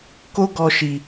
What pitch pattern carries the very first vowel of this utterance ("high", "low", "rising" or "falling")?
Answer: high